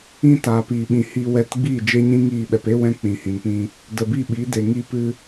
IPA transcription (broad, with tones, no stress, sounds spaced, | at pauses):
ĩ˧ t aː˨ p iː˨ ɓ ĩ˨ h i˧ w ɛ˧ t ɡ͡b iː˦˨ d͡ʒ e˦ ɲ ĩ˦ ŋ iː˦˨ ɓ ɛ˧ p e˦ w ɛ̃˧ k͡p ĩ˨ h ĩ˨ n p ĩ˧ | d ə˨ b i˦˨ ɓ i˨˦ d e˨ ŋ i˧ p ɨ˧